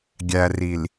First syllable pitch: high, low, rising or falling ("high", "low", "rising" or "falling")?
low